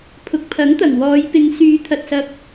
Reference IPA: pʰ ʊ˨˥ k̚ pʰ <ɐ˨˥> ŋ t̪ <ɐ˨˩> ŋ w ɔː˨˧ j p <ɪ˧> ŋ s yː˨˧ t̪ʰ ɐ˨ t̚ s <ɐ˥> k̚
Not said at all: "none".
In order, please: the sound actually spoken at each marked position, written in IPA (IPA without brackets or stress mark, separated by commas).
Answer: ɐ˨˥, ɐ˨˩, ɪ˨˧, ɐ˧